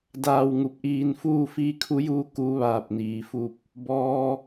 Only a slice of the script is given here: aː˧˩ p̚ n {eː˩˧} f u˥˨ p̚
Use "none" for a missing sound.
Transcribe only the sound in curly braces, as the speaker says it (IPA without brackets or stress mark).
iː˩˧